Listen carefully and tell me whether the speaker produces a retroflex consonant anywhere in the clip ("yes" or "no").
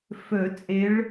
yes